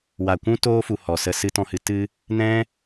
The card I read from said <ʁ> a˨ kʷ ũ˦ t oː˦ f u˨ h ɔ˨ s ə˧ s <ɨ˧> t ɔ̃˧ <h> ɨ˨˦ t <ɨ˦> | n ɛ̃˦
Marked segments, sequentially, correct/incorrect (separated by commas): incorrect, correct, correct, correct